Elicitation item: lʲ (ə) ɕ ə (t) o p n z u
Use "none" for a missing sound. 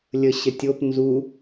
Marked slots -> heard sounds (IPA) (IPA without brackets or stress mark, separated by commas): ə, tʲ